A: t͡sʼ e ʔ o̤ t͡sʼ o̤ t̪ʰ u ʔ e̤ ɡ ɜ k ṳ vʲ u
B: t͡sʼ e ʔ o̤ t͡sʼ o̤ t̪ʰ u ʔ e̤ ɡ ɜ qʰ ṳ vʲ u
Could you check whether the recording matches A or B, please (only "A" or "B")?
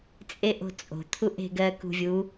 A